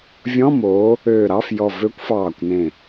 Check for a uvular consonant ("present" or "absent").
absent